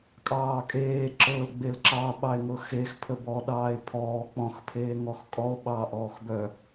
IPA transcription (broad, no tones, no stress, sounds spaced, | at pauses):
kʼ ɑː kʼ eː ǁ ɤ l ɡ͡b e l ǁ ɑ ɓ ɑ e̯ ŋ ɤ x e x pʰ ə b ɔ ɗ ɑː e̯ pʰ ɔː k͡p ɔ̃ x pʰ eː ŋ ɔ x kʼ ɔ o̯ ɓ ɑ ʔ ɔː x b œ